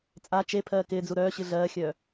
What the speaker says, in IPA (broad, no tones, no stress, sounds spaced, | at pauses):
t͡sʼ a t͡ʃ e pʰ ɜː k ɪː d͡z u ɾ œː ɕ ɨ ɮ ɜː xʲ œː